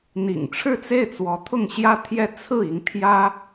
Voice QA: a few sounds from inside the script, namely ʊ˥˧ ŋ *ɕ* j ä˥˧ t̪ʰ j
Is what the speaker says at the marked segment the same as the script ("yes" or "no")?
yes